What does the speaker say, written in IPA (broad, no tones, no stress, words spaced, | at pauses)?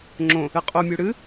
ŋ͡ǁõ | ɨqʼumʲu ɽɨ